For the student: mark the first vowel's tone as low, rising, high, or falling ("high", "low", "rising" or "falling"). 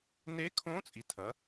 rising